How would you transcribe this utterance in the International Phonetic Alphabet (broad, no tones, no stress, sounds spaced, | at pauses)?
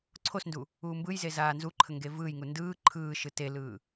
ǀʰ o s n d u | uː m b ɯ j z e z aː n z u ǃʰ ə ŋ ɡ e v ɯː j ŋ u n d ɯː ǃʰ ɯː ʃ ɯ t e l ɯː